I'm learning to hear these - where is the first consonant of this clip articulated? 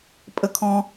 lips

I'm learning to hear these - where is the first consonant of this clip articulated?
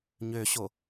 palate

